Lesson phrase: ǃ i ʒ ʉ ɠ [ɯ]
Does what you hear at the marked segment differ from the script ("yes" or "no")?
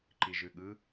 no